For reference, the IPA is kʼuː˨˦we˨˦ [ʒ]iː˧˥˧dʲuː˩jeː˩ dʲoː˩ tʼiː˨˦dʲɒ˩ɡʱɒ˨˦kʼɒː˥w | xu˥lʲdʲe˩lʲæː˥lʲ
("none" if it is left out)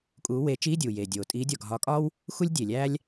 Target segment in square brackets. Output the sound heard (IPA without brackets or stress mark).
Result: t͡ʃ